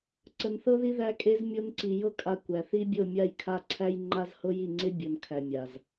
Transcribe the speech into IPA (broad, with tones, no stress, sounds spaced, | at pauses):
ǀ ə˧ n θ ɤ˦ ð i˦ ð æ˧ kʼ e˧ z mʲ o˦ n ǀ i˧ j ɤ˦ kʼ a˧ kʷ æ˨ θ i˧ bʲ ɤ˦˨ mʲ a˦˨ j kʰ a˦˨ ǀʰ æ˦ j ŋ͡ǃ a˦ z h ɤ˦ j i˦˨ ŋ͡ǀ e˦ bʲ o˨ n kʰ æ˨ mʲ a˨ z